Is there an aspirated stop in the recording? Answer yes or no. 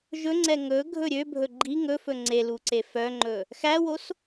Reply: no